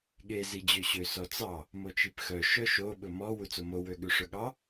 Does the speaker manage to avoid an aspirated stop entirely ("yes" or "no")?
yes